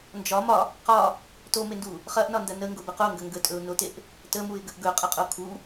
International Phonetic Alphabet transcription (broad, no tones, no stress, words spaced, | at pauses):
nd͡ʒɒ mɒ | qɒ | tomendu | χɐʔnɒndɐ nəŋɡobə qoŋɡɐ ŋɡətʼɵʊ̯noteʔ | təmuɪ̯ɡəʔ ɡɵqʼɐqʼo kʰu